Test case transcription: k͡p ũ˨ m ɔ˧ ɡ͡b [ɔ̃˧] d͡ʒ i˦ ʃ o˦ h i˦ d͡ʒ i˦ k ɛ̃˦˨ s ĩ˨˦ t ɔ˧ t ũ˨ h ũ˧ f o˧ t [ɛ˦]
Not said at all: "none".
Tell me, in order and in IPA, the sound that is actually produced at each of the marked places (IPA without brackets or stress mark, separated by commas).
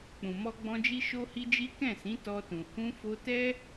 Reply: ɔ̃˧, ɛ˦